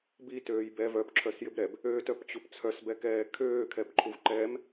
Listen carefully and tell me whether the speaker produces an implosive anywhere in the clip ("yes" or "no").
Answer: no